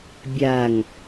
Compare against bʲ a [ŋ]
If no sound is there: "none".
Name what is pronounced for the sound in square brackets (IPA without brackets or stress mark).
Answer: ŋ